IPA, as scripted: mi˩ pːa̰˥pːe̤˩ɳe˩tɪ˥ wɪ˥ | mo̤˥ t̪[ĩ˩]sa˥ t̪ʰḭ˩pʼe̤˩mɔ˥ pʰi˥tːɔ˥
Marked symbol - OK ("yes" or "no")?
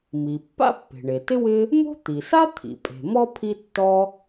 no